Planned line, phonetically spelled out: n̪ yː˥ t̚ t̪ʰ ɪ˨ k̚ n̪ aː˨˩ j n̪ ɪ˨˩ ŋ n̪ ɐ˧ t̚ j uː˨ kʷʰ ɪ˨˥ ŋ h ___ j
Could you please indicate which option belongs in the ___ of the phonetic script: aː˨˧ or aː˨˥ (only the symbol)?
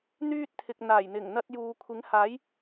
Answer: aː˨˥